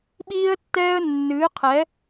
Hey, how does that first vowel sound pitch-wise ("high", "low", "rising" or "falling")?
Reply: high